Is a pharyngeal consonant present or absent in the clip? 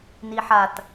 present